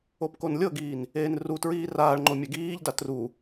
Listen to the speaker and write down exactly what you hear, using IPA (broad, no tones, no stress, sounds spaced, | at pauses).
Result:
o p k o n lʲ ɤ ɡ iː n | eː n r u t ɹ iː r aː ɭ ŋ͡ǃ o mʲ ɛ ɡ iː ʎ d a t r u